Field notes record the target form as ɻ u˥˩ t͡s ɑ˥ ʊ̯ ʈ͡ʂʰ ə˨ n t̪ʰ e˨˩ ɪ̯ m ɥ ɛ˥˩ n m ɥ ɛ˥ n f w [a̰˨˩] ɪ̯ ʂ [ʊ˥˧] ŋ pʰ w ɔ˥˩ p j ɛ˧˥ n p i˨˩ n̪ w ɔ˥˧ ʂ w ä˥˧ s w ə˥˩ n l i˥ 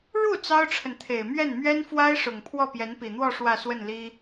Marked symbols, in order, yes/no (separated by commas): no, no